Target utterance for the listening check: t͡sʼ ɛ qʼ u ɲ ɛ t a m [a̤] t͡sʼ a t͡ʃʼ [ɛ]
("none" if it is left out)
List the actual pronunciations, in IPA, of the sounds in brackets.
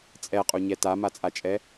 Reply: a, ɛ

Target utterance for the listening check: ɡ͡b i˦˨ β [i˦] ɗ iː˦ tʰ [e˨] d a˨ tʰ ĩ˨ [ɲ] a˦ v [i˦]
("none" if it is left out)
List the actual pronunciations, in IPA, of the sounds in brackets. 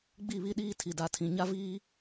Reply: i˦, i˨, ɲ, iː˦

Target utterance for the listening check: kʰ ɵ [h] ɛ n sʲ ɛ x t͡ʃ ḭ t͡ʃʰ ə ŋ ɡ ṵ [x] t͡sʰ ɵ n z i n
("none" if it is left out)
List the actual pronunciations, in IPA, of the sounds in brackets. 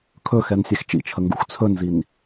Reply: x, x

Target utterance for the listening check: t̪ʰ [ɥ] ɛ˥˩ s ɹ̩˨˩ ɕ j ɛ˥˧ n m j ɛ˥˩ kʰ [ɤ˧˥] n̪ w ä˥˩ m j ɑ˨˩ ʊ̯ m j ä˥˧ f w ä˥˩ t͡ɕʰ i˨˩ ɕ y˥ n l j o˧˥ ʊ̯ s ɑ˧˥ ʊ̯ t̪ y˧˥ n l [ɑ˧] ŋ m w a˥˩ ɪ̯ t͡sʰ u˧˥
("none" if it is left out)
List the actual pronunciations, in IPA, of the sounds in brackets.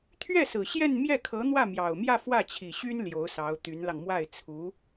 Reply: ɥ, ɤ˧˥, ɑ˧

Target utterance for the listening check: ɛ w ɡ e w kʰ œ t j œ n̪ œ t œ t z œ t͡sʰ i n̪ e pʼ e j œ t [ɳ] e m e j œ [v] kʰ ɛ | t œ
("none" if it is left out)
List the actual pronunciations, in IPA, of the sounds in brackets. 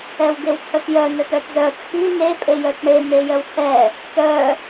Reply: ɳ, w

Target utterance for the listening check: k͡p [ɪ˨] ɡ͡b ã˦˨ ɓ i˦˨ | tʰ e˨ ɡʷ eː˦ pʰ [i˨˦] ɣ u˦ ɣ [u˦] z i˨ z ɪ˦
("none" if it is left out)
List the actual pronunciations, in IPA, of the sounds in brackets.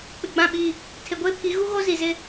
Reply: ɪ˨, i˨˦, o˦

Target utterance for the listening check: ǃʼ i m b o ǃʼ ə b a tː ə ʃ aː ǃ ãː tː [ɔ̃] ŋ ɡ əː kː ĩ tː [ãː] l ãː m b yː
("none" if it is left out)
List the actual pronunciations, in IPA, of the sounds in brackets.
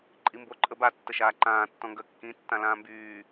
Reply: ɔ̃, ã

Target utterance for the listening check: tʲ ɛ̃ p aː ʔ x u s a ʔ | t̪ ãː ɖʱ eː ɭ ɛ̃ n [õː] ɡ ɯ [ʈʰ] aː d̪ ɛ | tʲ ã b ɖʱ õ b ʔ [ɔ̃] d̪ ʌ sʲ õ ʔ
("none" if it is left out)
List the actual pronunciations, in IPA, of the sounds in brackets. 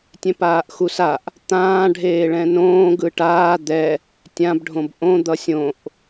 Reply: õː, ʈ, õ

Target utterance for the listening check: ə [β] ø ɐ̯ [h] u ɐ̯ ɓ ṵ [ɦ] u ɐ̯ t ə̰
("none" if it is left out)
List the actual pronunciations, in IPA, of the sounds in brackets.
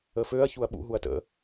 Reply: f, ç, ɦ

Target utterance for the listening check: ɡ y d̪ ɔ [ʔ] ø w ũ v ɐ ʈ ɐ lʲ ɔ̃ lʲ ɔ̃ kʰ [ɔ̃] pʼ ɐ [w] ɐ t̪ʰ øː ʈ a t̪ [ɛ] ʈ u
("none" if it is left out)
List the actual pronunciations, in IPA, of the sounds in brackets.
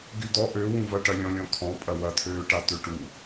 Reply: ʔ, ɔ̃, w, ø

